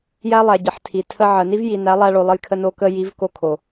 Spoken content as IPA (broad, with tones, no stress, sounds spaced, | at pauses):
j æ˦ lˠ æ˨ ɟ ə˨ ħ tʰ i˨ tʰ ə˧ ʕ ə˨ n i˦ v j i˨ n æ˨˦ lˠ æ˧ ɭ o˨ lˠ ə˧ j kʰ ə˧ n o˧ k ə˧ j i˨˦ v k o˧ kʰ o˨